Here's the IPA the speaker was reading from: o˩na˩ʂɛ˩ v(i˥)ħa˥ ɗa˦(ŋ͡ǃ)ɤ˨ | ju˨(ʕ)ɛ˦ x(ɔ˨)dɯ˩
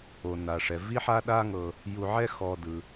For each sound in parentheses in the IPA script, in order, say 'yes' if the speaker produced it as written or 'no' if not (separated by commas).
yes, no, yes, yes